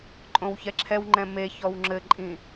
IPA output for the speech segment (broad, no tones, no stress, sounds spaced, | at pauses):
ǃʼ õ w ç ɛ ǁʰ ɛ w ŋ͡ǃ ɛ̃ m e ç ɔ w ŋ͡ǁ ɘ ǃʼ ĩ